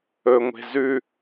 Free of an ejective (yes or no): yes